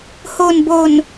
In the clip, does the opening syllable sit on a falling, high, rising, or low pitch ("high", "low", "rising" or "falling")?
low